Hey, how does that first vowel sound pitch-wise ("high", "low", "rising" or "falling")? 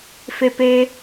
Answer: high